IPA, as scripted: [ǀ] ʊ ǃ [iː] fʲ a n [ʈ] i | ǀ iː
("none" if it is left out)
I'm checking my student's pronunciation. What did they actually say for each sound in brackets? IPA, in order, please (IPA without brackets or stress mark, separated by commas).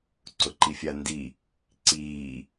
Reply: ǀ, i, d